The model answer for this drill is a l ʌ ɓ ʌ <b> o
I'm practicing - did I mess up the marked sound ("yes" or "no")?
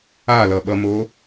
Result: yes